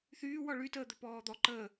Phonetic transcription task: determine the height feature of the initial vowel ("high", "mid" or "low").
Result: high